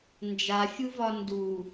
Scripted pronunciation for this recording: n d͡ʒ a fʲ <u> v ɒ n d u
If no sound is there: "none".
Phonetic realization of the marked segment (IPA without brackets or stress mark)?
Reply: u